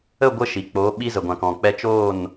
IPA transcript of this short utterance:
ə˦˨ ɡʷ ə˧ ʃ i˨ k͡p oː˨˦ ɓ i˧ z ə˨ ɡʷ ã˨ k ɔ̃˨ k͡p ɛ˧ t͡ʃ oː˦˨ n

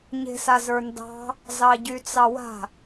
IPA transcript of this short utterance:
ɲ e̤ s a z ə˞ n d ɑ̤ | z ɑ ɟ y t͡s ɑ w a̤

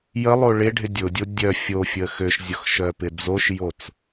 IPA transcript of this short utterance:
j ə lˠ o ɭ ɪ ɖʱ ɪ dʲ ʊ dʲ o dʲ œ fʲ o fʲ ə x ø ʃ zʲ ʊ x ʃ œ p ɪ d͡z o ʃ j o t͡s

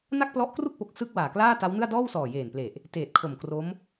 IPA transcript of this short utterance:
n a˥˩ k̚ p l ɔ˦˥ ʔ k r u˥˩ k̚ p o˨˩ k̚ s ɯ˥˩ k̚ w aː˨˩ k l aː˥˩ t a˦˥ w n ɯ˥˩ a̯ d ɔː˥˩ w s ɔː˨˩ j eː˨˩ n p l e˨˩ ʔ | t eː˨˩ t̚ kʰ o˨˩ m k r o˦˥ m

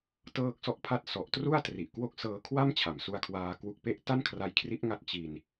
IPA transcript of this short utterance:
t ɤː˦˥ k̚ s ɔ˦˥ ʔ pʰ a˦˥ t̚ s ɔ˨˩ ʔ t r u˥˩ a̯ t r i˨˩ ʔ k w o˦˥ k̚ s ɤː˧ kʰ w a˥˩ m t͡ɕʰ a˨˩ m s u˧ a̯ kʰ w aː˧ k w u˦˥ k̚ p e˥˩ ʔ t a˥˩ n kʰ r a˦˥ j kʰ r i˦˥ ʔ ŋ a˦˥ t̚ t͡ɕ i˧ n

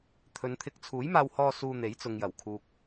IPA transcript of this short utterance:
t̪ʰ ɵ˨˧ n t̪ʰ ɪ˧ k̚ t͡sʰ uː˨˥ j m aː˧ w h ɔː˧ s uː˧ n̪ e˨˥ j t͡s ʊ˨ ŋ j ɐ˨˩ w kʰ uː˨ k̚

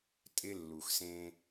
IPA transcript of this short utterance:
tʼ ɪ˦ lː u˨ x s ẽ˦

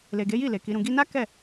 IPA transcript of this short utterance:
l e˨ ɡ e˨˦ j i˦˨ l e˨ k i˨˦ ɾ ũ˧ ɡ i˧ n a˦ k ɛ˦˨

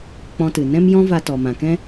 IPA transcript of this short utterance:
k͡p ɔ̃˧ t ɨ˨ n ɛ̃˦ m j ɔ̃˦ v a˧ t ɔ˨ m ã˨ k ɛ̃˦

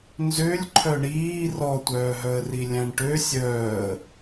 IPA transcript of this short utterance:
n z ø lʲ ǃʰ œ ɳ iː r ɔ tʷ œː ɦ œ ə̯ r i lʲ æ̃ ɳ ʈ ø sʲ œː ə̯

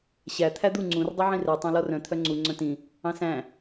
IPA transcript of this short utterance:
ɕ æ t̪ʰ æ d̪ u ŋ͡ǀ ũ r dˤ y ʕ ĩ r ɛ tˤ ɑ̃ l ɔ r œ̃ t̪ʰ œ ŋ͡ǀ u ŋ͡ǀ œ̃ t ĩ | ɑ̃ s æ̃

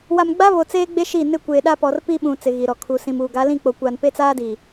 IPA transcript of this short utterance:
w a˨ m ɡ͡b a˦ β o˨ t͡s eː˦ ɡ͡b e˦ ʃ i˦˨ n ɪ˦˨ kʷ eː˨ ɗ a˦ p ɔ˨ r p i˦ ɓ ũ˨ t͡s ɪ˨ ɣ i˨ ɾ ɔ˨ kʰ u˨ s ĩ˨ m uː˨ ɡ a˨˦ l ĩ˦˨ k͡p o˨ kʷ aː˨ n p e˦ t͡s aː˦ d iː˨

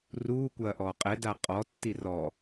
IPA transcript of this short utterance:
r uː kʷ ɐː ʔ ɔː qʼ ɛ d a qʼ ɔ tː i r ɔ

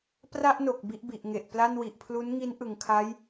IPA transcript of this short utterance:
p r a˥˩ ʔ n o˨˩ k̚ b i˥˩ ʔ b i˨˩ ʔ ŋ e˨˩ ʔ p l a˥˩ n w i˨˩ ʔ pʰ l u˦˥ n ŋ i˦˥ n ʔ ɯ˩˦ ŋ kʰ a˦˥ j

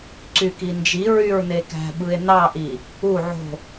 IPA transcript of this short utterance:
ǀ y k i n d͡ʒ i ɹ y ɹ n e k æ̤ ɓ ɯ e̯ n ɑ ʔ i | u ʕ o̤

